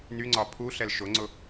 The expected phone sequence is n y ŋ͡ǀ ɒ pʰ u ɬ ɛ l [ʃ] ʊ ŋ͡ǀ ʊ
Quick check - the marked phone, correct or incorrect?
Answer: correct